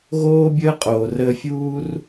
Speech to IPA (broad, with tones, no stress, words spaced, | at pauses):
ɣoː˦bʲəː˦ qʼoː˨ rəː˦ fʲuː˦r